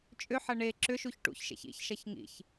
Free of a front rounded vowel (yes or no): no